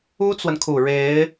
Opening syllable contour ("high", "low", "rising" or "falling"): high